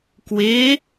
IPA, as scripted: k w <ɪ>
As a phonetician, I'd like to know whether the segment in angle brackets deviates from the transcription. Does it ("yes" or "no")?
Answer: no